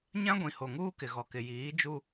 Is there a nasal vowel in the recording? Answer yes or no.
yes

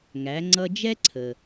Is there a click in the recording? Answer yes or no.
yes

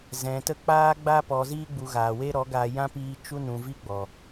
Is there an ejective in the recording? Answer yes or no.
no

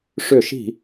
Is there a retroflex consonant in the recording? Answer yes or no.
yes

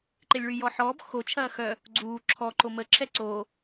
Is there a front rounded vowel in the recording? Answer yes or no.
yes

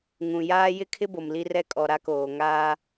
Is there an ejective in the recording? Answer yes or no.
yes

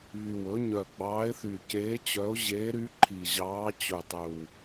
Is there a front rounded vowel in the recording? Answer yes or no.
yes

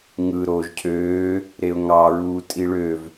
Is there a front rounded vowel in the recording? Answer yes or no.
yes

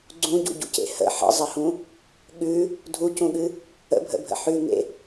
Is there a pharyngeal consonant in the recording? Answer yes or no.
yes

